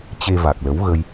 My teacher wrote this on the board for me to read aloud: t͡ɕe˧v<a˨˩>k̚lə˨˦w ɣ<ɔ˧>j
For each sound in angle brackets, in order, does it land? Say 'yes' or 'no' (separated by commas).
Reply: yes, no